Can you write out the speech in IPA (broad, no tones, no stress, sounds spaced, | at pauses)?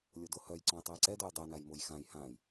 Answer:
lʲ o d o h œ j ǀ ɔ̃ j tˤ ø j ǀ ɛ d o j dˤ ø n a j m o j x ã j h ã j